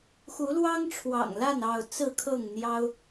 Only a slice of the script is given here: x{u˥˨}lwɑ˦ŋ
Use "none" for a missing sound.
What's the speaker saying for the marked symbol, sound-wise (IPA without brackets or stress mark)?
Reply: u˨˦